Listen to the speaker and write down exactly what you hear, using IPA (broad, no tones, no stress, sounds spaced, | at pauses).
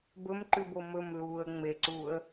b ɵ m ǃ ʉ b o m ɵ m l uː ə̯ ŋ͡m e ǀ uː ə̯